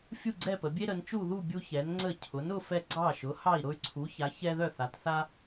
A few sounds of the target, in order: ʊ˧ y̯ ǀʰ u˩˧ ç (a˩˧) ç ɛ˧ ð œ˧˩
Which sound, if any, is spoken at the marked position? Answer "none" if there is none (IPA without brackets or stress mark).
a˩˧